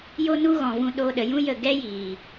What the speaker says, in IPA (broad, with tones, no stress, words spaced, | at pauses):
jo˦nu˦ɣɔ̃˨vũ˧ ɗo˧ɗə˨jũ˦ jə˦˨ ɡɛ˦jiː˨